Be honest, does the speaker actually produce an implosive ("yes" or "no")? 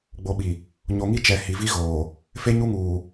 yes